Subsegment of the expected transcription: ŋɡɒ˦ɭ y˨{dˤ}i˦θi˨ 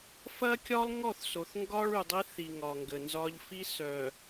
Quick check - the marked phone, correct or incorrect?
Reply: correct